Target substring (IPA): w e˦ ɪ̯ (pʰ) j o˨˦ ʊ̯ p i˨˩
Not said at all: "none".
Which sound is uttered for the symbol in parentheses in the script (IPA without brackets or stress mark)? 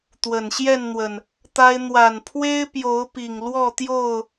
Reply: p